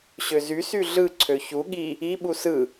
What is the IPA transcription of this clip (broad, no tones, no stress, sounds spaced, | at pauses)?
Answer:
ɕ ø z y s y ɮ ɯ ǀʰ ø ç u ɠ i | i ɓ u s ɯ